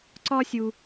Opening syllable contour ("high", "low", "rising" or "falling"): high